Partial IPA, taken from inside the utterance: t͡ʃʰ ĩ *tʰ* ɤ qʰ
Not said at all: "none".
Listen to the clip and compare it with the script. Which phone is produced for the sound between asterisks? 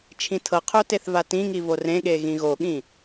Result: tʰ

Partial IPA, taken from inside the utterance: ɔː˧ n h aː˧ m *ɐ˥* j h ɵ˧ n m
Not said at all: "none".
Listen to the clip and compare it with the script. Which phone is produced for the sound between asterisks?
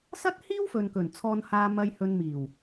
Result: ɐ˧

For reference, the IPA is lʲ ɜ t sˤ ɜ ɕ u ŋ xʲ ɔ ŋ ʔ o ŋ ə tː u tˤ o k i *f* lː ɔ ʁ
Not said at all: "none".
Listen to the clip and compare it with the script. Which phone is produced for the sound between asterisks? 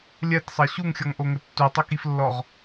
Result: f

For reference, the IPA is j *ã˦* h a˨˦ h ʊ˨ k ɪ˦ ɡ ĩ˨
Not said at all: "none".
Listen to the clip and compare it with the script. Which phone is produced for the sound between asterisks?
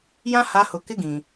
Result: ã˦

